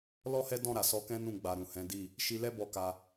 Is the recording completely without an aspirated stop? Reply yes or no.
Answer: yes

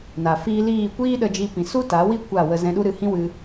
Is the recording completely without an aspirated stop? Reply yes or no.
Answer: yes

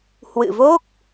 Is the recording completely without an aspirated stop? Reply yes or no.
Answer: yes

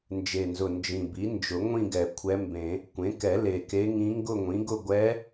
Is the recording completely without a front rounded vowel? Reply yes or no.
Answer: yes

